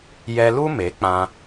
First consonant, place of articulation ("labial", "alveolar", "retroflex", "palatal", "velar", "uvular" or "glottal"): palatal